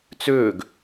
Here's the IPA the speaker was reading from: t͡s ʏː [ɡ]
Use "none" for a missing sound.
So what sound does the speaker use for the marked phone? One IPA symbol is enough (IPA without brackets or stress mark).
ɡ